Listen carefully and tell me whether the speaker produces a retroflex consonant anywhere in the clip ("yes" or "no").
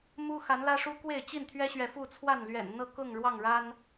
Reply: yes